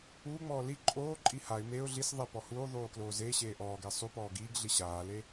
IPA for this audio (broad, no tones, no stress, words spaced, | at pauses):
uːŋ͡mɔː li ǃʼoːǃʼi haɪ̯ meʊ̯ ɮis ðˤe pɔhuːðˤuː kloːzeːɕeː ʔɔːɡe sˤupɔː ɡiːɡɮi ɕaːle